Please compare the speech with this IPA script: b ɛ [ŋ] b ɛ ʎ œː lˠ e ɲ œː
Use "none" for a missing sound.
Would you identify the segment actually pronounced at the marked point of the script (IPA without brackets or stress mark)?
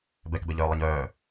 k